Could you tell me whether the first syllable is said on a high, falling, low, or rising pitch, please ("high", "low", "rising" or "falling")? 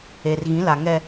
low